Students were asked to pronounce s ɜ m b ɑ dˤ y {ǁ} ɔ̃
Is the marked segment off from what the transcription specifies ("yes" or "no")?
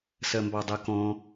yes